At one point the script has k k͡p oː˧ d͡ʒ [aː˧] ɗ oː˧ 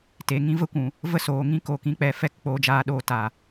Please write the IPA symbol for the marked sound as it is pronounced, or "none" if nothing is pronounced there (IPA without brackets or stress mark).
aː˧